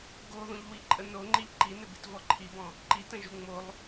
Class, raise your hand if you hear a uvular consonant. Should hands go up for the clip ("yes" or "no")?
no